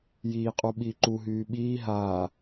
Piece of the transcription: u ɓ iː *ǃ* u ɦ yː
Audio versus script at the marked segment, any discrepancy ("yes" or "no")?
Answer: no